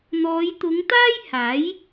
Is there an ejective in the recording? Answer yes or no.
no